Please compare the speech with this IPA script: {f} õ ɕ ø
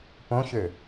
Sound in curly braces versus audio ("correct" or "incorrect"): incorrect